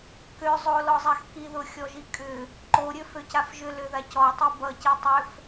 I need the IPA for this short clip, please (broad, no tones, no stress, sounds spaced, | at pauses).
k ø zˤ o l ɔ zˤ a x k i ð ʊ xʲ ɔ ʒ i kʼ ʏ | ǃ o ɾʲ ø f ø c a f ʒ ʏ l ø ð a c ɔ tˤ i b ʌ c i tˤ ø f